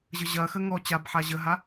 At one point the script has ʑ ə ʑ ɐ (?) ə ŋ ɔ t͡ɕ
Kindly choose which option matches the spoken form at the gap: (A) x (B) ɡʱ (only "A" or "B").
A